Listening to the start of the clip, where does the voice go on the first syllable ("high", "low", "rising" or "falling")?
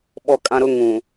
high